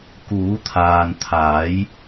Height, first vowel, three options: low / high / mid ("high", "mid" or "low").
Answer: high